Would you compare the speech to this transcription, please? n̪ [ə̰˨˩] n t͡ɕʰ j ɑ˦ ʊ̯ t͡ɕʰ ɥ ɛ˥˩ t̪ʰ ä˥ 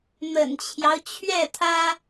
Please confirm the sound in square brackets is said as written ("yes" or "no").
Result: yes